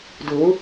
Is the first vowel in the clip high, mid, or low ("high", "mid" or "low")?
high